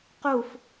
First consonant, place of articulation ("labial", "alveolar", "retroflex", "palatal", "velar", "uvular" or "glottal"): uvular